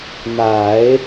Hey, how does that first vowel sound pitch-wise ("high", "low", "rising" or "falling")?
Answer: low